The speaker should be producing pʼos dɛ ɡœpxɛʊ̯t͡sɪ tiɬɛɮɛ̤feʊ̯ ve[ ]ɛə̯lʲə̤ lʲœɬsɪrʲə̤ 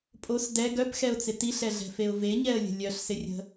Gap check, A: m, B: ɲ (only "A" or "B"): B